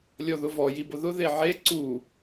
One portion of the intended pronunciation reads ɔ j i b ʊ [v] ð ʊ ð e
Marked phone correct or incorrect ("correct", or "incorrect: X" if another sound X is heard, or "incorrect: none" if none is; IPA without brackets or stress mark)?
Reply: incorrect: none